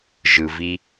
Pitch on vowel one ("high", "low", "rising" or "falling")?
low